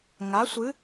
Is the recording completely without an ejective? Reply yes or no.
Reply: yes